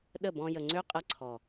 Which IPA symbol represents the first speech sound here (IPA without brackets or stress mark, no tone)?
ɗ